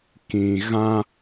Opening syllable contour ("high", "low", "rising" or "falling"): low